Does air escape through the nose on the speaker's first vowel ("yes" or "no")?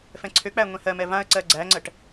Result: yes